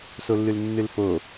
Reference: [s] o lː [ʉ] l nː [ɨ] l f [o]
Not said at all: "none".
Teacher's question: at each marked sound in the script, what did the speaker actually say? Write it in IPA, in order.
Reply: s, ʉ, ɨ, o

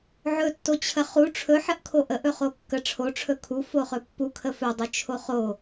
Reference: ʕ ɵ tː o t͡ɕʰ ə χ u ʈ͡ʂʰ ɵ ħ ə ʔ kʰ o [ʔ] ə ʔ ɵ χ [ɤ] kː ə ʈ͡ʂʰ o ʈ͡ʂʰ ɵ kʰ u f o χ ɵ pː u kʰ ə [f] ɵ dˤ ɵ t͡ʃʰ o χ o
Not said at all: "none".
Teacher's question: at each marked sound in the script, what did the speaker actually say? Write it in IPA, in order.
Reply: ʔ, o, f

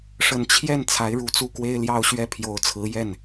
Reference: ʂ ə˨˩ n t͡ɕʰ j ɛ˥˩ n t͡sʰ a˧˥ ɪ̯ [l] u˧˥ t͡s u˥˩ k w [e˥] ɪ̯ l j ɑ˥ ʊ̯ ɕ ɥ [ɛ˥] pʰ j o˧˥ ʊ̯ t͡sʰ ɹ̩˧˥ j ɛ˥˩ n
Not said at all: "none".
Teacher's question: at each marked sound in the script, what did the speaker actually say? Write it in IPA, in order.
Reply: ɻ, e˥, ɛ˥

